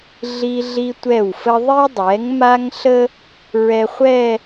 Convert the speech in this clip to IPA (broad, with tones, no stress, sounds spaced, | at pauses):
ɮ i˧ ɮ i˧ tʷ ɛ˧˩ w f ə˧ ðˤ i˧ dˤ ɛ˩˧ ŋ m a˧ ŋ ɬ ə˥ | ɹ ɛ˧ χʷ ɛ˥˧